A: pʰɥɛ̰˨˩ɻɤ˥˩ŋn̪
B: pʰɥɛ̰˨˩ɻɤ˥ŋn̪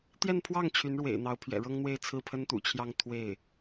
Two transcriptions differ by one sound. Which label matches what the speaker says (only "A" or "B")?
B